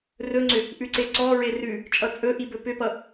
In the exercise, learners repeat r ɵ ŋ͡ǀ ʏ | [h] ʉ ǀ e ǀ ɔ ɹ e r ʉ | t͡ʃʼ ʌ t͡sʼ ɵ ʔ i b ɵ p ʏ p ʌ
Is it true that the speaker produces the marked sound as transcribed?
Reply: no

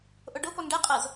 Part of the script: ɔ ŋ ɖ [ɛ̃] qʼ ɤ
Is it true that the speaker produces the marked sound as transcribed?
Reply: no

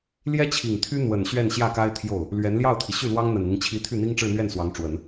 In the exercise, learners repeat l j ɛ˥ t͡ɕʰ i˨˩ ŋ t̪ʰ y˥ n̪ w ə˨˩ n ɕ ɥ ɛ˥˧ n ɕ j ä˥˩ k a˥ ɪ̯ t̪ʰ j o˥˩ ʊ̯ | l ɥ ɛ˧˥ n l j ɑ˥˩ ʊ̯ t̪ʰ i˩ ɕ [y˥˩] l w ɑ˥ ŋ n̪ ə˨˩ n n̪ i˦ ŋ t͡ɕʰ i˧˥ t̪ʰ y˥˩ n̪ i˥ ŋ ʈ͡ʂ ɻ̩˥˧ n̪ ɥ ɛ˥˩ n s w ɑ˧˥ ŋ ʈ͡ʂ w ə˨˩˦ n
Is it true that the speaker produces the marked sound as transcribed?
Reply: yes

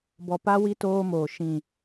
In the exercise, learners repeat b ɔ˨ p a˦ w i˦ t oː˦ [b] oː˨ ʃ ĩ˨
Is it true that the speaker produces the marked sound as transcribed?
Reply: no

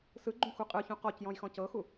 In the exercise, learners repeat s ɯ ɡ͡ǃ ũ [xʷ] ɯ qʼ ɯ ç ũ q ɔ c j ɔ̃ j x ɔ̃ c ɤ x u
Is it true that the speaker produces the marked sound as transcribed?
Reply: yes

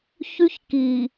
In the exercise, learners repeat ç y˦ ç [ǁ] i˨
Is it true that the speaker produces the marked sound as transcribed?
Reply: no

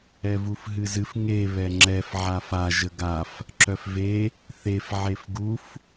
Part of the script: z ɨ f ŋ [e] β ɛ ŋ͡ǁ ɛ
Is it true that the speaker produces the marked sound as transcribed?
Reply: yes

